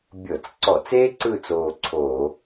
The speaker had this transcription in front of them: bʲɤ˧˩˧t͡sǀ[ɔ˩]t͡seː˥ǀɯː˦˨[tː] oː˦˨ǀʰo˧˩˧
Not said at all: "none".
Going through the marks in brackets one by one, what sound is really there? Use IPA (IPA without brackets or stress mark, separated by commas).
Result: ɔ˧˩˧, t͡s